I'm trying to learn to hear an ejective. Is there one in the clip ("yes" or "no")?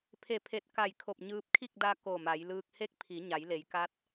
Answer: no